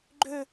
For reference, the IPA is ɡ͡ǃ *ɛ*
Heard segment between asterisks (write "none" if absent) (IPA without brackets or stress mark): ø